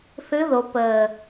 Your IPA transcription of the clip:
θ ɨ˧˥ ð o˩˧ p əː˨˩

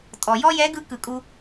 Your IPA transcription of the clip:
tʼ ɔ˩ j ɔ˥ j ɛ˧˥ ɡ ɯ˧˥ k ɯ˩ kʼ u˧

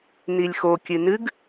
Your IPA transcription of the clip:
n i lʲ x o kʲ ɨ n ɨ ɡ

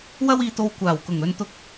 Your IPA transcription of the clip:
w ɐ˥ w iː˧ t̪ o˧ w kʷ aː˨˩ w k ʊ˨˩ ŋ ɵ˧ n t̪ ʊ˧ k̚

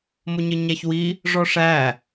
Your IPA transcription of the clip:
m ʊ ɲ ə ɲ æ ç w i | ʐ ɔ ʂ æ

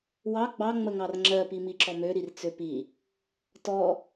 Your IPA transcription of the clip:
w ɑ ɡ͡b ɑ ŋ͡m ə ŋ ɑ r ŋ͡ǁ ɜ p i m i ǁ ɔ m ø ɾ i r t͡s ø p i | t ɔ

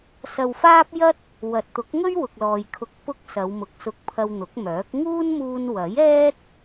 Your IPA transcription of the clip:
s ɐ˧ w f aː˥ p̚ j ɐ˥ t̚ | w ɐ˨ t̚ t̪ ʊ˨˥ k̚ ŋ ɵ˥ ɥ w ʊ˨ k̚ l ɔː˨ j kʰ ʊ˧ k̚ p ʊ˥ k̚ s ɐ˨˧ w m ʊ˨˥ k̚ s ʊ˧ k̚ pʰ ɐ˧ w n̪ ʊ˨˥ k̚ m œː˨˥ k̚ ŋ uː˥ n m uː˧ n w ɐ˨˥ j ɛː˥ t̚

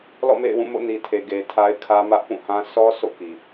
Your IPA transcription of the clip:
l ɔ̰˦˨ m ḛ˦˨ ɪ̯ w ũ˦˨ m o̰˦˨ n i˨ tʰ e˨ ɡ e˨ tʰ a˦ ɪ̯ kʰ ä˦ m ä˦ ʔ p ũ˦˨ h ã˦ s ɔ˦ s o̰˦˨ k i˨

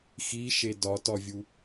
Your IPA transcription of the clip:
x i ʃ e d ɒ t ɒ vʲ u

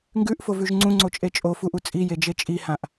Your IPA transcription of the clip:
ŋ ɡ ʉ ʔ f o v ʉ ʒ ŋ͡ǀ ũ ŋ͡ǀ o t͡ʃʼ e t͡ʃʼ o f u ʔ u t͡sʼ i j e d͡ʒ e t͡ʃʼ i h ã ʔ

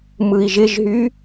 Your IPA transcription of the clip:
m ɯ i̯ ʒ ɪ ʒ ɦ y

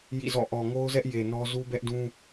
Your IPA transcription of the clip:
j ḭ˦˨ z ɔ̰˦˨ ʔ ɔ˨ ŋ o˦ ʊ̯ z ɛ˦ ʔ j e˨ n ɔ˦ z u˦ b ɛ˦ ʔ d ũ˦

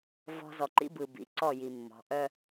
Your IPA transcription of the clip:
v ɔ̤˦ z ɔ˨ ǃ ḭ˦ b ɯ˨ b ḭ˨˦ ǀ ɔ˦˨ j i˨ mː ɔ̤˨˦ ʔ œ˦

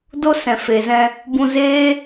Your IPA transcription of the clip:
d o˦ s ɛ̃˨ f e˨ z ɛ̃˧ | b ũ˧ z eː˦

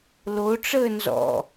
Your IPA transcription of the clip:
l o ʈ͡ʂ əː n z ɔ̰

